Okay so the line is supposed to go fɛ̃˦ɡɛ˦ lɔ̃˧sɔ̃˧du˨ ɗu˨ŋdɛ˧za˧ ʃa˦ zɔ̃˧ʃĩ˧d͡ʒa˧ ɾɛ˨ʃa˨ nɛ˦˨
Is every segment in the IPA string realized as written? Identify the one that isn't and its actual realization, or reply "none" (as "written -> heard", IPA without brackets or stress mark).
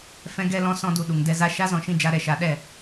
n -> ɗ